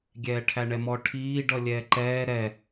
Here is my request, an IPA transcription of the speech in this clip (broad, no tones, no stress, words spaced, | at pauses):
ɡʲɛːʈʰæɳɛmɔ ʈʰiː ɖʌlʲɛːǃɛː ɾɛ